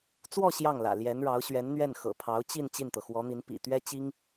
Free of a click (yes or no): yes